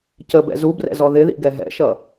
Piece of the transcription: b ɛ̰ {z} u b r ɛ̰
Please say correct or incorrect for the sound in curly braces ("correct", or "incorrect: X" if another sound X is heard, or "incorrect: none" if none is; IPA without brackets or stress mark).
correct